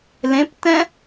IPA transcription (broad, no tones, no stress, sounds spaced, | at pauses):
l ẽ p t ɛ̃